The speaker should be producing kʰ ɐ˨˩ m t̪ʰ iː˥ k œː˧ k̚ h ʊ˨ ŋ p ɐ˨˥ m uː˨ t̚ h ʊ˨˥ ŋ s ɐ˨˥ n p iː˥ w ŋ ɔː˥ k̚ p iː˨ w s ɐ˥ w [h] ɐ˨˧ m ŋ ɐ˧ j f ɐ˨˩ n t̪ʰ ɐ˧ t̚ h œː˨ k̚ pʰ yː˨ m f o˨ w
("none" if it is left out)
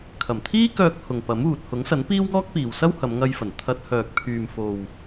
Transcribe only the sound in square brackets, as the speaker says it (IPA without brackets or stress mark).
h